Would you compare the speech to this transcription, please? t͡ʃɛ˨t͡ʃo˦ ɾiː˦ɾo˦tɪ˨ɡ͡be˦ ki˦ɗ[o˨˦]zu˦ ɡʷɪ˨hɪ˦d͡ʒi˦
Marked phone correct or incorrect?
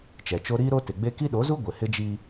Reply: correct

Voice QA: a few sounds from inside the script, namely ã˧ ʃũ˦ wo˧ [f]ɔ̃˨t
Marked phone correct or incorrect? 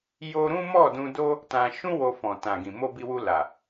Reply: correct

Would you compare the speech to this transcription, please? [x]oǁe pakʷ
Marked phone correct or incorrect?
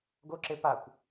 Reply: incorrect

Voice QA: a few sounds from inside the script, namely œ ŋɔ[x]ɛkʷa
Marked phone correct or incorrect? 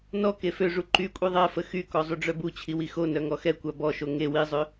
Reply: correct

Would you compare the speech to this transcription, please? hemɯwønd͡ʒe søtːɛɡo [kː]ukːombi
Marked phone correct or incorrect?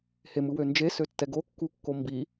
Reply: correct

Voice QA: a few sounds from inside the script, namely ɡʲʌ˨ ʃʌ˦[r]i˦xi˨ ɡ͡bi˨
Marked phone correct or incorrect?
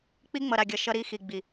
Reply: incorrect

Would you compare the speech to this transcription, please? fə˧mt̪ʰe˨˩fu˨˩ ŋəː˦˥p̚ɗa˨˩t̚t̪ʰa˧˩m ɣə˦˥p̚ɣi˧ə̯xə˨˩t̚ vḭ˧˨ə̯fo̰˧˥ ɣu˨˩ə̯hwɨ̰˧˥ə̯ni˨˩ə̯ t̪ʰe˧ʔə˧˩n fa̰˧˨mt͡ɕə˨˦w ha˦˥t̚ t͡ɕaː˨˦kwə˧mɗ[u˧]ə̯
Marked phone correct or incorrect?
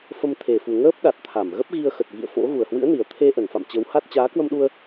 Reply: correct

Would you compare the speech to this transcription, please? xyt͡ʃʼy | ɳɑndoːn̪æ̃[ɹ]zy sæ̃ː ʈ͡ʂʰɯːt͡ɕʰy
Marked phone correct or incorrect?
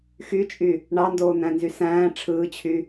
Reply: incorrect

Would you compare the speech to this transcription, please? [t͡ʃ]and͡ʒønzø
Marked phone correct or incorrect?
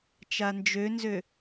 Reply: correct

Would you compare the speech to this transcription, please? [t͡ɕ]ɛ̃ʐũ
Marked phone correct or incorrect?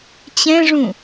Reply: correct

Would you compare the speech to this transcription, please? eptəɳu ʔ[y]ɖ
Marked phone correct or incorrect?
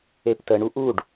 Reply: incorrect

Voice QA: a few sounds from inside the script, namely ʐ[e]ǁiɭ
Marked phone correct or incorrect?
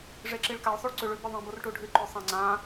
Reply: correct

